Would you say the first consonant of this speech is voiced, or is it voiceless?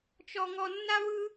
voiceless